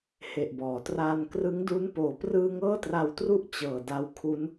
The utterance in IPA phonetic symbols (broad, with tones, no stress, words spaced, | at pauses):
he˨˩ʔbɔː˩˦traː˧n krɯ˦˥ŋdu˦˥n poː˩˦prɯː˧ ŋɤː˥˩tra˧wtru˥˩ʔ t͡ɕɤː˨˩da˧wkʰu˦˥n